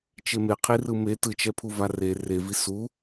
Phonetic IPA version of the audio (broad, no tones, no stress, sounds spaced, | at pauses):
t͡ʃ e m e qʰ i r ɯ m e t ɯ t͡ʃ ɛ pʰ u v a r e r e v i s u